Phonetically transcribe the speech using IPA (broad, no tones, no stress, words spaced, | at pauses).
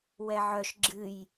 wɛʕœʃ ɡ͡ǁɨj